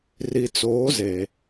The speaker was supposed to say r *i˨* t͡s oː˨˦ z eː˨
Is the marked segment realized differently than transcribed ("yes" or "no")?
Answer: no